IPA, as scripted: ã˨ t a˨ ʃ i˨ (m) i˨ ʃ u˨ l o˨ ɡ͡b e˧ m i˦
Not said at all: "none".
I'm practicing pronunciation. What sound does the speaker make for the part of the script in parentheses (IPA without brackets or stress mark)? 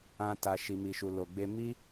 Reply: m